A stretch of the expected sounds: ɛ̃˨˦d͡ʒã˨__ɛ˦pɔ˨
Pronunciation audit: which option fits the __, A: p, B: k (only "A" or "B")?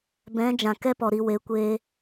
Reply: B